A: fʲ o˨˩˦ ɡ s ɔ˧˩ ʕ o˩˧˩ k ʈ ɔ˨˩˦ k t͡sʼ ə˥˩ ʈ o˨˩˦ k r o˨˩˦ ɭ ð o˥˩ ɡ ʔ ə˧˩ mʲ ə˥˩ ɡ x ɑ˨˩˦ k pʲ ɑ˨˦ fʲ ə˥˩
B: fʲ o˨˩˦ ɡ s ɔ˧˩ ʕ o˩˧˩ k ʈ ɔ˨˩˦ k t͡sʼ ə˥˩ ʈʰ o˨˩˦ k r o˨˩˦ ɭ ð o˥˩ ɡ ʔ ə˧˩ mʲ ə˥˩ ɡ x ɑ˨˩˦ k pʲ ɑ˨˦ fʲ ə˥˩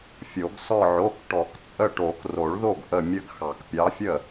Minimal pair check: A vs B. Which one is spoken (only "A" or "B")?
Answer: A